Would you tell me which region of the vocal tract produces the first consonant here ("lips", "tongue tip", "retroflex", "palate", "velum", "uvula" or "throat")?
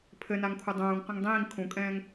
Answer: lips